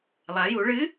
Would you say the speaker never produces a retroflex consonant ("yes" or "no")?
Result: no